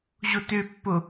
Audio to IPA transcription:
ʑotøpːo

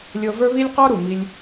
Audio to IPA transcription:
lʲɤ˧və˞˦βi˦lʲ qɔ˦ɾu˨mi˧lʲ

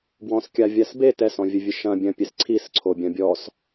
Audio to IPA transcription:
bwɔ̃skʲavʲas be tɛsɔ̃vʲɘvʲɨ ʃɐ̃ bʲɐ̃pʲes ǀʰisǀʰobʲɐ̃ bʲɔs

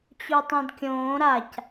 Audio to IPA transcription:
t͡ɕutˤɛ̃dkʲõː ɾac

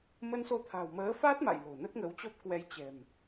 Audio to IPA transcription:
mə˧nso˧t̪ʰa̤˨˩w məː˨˦fa˦˥t̚ma̰˧˨j lo̤˨˩nə˦˥t̚ŋə˨˦wt͡ɕɔ˦˥p̚ kwɛ˧jt͡ɕɛ̤˨˩m

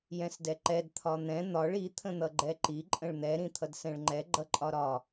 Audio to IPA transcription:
jɛ̃sdɛǃɛd t̪ʰɒn̪ɛ̃ n̪ɒɭ i t̪ʰə̃n̪ʌɡ͡ǃɛǃi ǃʼə̃ɭn̪ɛ ɾĩt̪ʰʌdsɛ̃ɭŋ͡ǃɛ ɡ͡ǃʌǃʼɒɾɒ

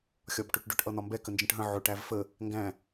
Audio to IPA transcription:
xʲɒbʈʊʈɖʊʈ ʔʌn̪ɒmbɛ kənd͡ʒə̃ʈɦə̃ ʕʊ ʈævfə | ŋɡæ̃

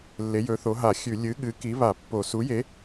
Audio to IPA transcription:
lːe˨˥jɵ˨˥θo˨˥ ɦa˧˩˧xʲʉ˧˩˧ lʲɨ˨˥ɠɨ˨˥ki˨˥ βa˧˩˧pːo˧˩˧ su˨˥je˨˥

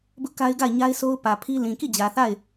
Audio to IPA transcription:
bʊ˦ʔka˦ɪ̯ɡa˦˨ɪ̯ ɲa˦ɪ̯sʰo˦ʊ̯pä˨ pʰi˦ lĩ˨ki˦˨d͡ʑä˨θa˦˨ɪ̯

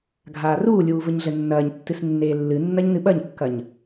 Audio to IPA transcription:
ɡʱaːruːlʲuː vɘɲɮɘnːɐːɲtːɨs nːeːlːɨnːɐɲ nɨɓɐɲkːɐɲ

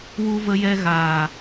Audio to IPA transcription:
wu˧və˧jɛ˧ ɣaː˨

